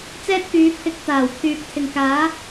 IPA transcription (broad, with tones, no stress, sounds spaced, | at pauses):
t͡s ɛː˥ t̚ k yː˨˧ pʰ ɪ˧ k̚ t̪ aː˨˩ w pʰ yː˨ k̚ t̪ʰ ɪ˨ ŋ k aː˨˥